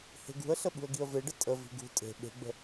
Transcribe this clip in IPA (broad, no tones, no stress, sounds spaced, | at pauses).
h e̤ ɡ ṳ ə̯ ɬ ə ɓ ṳ ə̯ ɡ i ə̯ v e ɖ ə tʼ ə v i̤ ɡ ṳ tʼ e̤ ɓ e̤ ɡ͡b ə̤